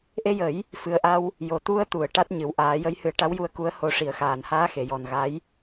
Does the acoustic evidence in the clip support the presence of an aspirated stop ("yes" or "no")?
no